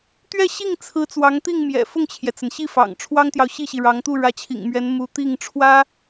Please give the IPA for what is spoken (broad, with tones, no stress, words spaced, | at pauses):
t̪ɥɛ˥˧ɕi˥˩ŋt͡sʰɹ̩˧˥ t͡swɑ˧˥ŋt̪i˥˩ŋmjɛ̰˨˩ fʊ˥˩ŋt͡ɕʰjɛ˩t͡sə˩n ɕi˥˩fɑ̰˨˩ŋ ʈ͡ʂʰwɑ˥ŋt̪jɑ˨ʊ̯ɕi˥˩ɕi˩ ɻɑ˧˥ŋt̪u˥˩ ɻä˧˥t͡ɕʰḭ˨˩ŋmɥɛ˧˥n mu˧˥t̪i˥˩ŋ ʈ͡ʂʰwä˥